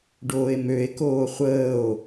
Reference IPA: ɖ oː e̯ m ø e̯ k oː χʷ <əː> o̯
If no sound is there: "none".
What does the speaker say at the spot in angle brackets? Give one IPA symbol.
əː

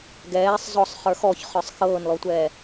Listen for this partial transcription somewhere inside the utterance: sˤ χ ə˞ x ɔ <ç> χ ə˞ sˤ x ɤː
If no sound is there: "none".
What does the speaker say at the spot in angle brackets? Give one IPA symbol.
ç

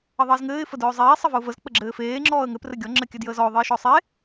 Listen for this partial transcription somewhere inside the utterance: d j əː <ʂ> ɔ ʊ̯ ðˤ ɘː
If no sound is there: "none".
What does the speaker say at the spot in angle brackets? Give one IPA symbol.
z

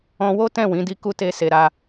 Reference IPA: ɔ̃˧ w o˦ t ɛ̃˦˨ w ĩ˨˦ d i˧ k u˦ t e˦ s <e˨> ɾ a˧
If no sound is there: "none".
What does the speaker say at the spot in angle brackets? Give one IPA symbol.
e˧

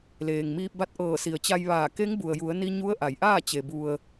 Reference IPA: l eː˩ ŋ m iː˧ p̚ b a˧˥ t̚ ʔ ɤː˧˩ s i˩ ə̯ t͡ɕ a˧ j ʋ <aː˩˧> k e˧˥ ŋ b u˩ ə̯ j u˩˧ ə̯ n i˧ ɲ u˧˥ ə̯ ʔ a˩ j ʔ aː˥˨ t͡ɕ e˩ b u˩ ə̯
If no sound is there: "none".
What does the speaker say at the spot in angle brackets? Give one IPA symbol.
aː˧˩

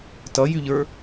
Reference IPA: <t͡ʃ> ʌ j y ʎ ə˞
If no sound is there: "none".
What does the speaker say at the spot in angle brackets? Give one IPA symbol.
t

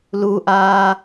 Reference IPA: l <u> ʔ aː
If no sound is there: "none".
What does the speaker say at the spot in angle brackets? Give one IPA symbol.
u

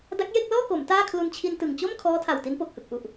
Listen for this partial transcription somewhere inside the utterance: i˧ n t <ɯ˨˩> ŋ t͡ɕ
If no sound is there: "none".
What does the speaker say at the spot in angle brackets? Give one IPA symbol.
ɯ˨˩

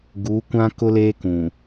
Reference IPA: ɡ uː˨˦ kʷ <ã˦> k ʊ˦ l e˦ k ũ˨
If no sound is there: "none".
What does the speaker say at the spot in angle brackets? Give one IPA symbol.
ã˦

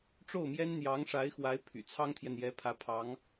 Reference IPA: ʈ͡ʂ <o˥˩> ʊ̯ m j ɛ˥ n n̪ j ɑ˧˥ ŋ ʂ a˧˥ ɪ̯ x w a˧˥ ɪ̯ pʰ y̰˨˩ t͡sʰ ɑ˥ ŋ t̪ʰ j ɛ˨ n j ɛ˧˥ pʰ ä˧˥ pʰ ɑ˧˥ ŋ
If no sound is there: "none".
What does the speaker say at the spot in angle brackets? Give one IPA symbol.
o˥˩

